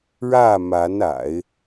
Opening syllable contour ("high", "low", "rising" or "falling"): falling